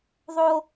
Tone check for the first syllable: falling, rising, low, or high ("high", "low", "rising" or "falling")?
high